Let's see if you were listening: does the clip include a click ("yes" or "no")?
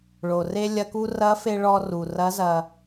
no